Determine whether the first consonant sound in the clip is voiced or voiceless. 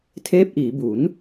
voiceless